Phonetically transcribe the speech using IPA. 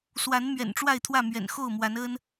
s w a˨˦ n m ɥ ɛ̰˨˩ n ʈ͡ʂ w a˥˨ ɪ̯ t̪ʰ w ä˥˨ m ɥ ɛ̰˨˩ n x o˥˨ ʊ̯ m w a˨˦ n ə˦ n

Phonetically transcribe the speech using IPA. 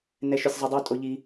n ɛ˧ ʃ ʏ˧ sʲ zˤ y˧ dˤ u˦˨ tʼ o˧ ʎ i˧

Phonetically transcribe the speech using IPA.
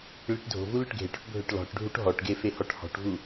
ɭ i ʈ dʱ o̤ v u l ø ʈ ɡʱ e ʈ ɔ̤ ʈ bʱ ø ʈ l ɔ̤ ʈ ɖʱ u ʈ ɦ ɔ ʈ ɡ e f e h ɔ ʈ h ɔ̤ ʈ v u

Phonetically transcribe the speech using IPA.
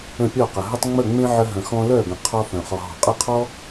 ə̃˧˩ pʲ ɔ˧˩ q ə˩ ɦ ə˧ tˤ ŋ͡m ə˧˩ ŋ͡m ẽ˧ ʕ ə˧ ɦ ə̃˩ x ɔ̃˧ l œ˧˩ ɡ ə̃˩ qʰ ɔ˧ f œ̃˩ χ ɔ˩ ɦ ɔ̤˩ qʼ ə˧˩ qʰ ɔ˧

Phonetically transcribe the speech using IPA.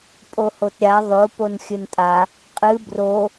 pʼ o h o t ɾʲ a ðˤ o p o n xʲ ɨ n tʼ a | qʼ ɨ b r o

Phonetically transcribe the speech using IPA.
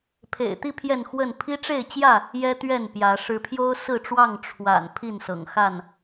pʰ ḛ˨˩ ɪ̯ t̪ i˥˨ pʰ j ɛ˥˨ n x w ə˥˨ n pʰ i˦ ʈ͡ʂ e˥˨ ɪ̯ t͡ɕ j ä˥˨ | j ɛ˦ t̪ ɥ ɛ˥˨ n p j ä˨˦ ʂ ɻ̩˨˦ pʰ j o˦ ʊ̯ s ɹ̩˥˨ ʈ͡ʂ w ɑ˥˨ ŋ ʈ͡ʂʰ w a̰˨˩ n pʰ i˥˨ n s ɤ̰˨˩ ŋ x a˥˨ n

